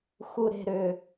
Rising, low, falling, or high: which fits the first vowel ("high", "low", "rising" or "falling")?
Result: low